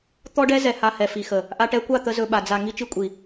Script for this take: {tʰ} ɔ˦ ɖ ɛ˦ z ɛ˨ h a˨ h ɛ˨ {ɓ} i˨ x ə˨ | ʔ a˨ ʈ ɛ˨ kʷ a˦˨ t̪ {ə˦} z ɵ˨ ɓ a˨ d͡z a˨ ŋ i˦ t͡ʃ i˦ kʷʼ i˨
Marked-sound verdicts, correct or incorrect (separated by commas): incorrect, incorrect, correct